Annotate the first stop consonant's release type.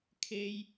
aspirated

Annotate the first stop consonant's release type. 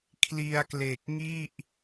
aspirated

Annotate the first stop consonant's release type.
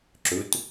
click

